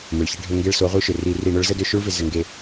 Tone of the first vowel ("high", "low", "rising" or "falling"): low